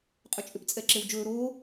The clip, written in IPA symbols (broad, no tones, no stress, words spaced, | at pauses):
qʼʏt͡ʃʼʏp t͡sʼɛǁewd͡ʒɵː ɾoː